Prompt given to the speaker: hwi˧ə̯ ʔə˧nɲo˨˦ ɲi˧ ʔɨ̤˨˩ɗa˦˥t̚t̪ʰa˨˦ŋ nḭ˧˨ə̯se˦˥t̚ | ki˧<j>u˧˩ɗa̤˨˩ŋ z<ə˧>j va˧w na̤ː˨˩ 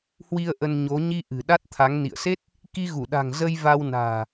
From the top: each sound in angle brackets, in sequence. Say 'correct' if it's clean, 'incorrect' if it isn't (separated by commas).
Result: incorrect, correct